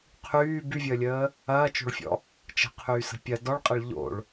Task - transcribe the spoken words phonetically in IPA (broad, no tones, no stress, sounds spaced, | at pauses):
qʰ yː b y vʲ əː lʲ əː | ɐː t͡ʃ o̤ ɭ fʲ ɔ̰ | t͡ʃ ə̤ qʰ yː s ə̤ pʲ ɐ d ɔ ɭ qʼ ə ɭ ʎ o̰ ɭ